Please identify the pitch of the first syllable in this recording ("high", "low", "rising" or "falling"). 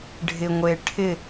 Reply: low